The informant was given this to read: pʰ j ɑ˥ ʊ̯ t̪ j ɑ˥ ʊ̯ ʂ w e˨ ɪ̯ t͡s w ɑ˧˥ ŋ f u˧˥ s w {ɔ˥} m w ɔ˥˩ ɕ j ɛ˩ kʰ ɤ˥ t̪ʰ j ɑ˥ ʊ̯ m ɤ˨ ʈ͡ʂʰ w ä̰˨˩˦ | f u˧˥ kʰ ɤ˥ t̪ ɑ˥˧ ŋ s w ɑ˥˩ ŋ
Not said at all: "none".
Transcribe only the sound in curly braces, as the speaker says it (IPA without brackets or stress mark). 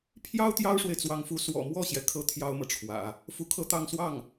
ɔ̰˨˩